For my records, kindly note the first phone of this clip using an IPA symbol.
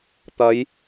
t̪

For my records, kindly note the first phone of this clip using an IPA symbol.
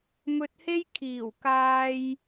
m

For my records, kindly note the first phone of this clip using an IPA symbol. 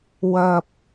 w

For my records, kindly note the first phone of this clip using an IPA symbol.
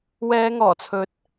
w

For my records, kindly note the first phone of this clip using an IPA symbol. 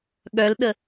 ɠ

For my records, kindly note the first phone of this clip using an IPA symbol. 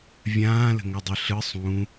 vʲ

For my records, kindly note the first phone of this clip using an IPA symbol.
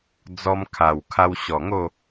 d͡z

